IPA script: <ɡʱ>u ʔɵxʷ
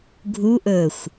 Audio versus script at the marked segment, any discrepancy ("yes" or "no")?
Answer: no